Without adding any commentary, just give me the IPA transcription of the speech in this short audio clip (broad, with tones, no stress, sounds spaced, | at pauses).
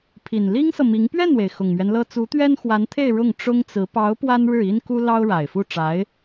pʰ i˨˩ n l i˥ ŋ s ɤ˨ m i˧˥ ŋ p ɥ ɛ˥˩ n w e˩ ɪ̯ x ʊ˨˩ ŋ m ɥ ɛ˦ n l ɤ˥ t͡s u˧˥ t̪ ɥ ɛ˥ n x w a˧˥ n t̪ʰ e˥˧ ɪ̯ ɻ ʊ˥˩ ŋ ʈ͡ʂ ʊ˥ ŋ t͡s ɹ̩˧˥ p ɑ˧˥ ʊ̯ p w a˥ n ɻ ɻ̩˥˩ i˥ n k u˥ l ɑ˥ ʊ̯ ɻ a˨˩ ɪ̯ f u˥˩ ʈ͡ʂ a˧˥ ɪ̯